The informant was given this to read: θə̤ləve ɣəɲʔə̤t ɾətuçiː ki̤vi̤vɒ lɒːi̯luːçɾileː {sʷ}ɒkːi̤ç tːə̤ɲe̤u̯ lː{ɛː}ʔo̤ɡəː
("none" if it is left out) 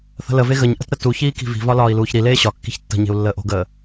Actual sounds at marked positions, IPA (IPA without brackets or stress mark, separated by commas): ɕ, əː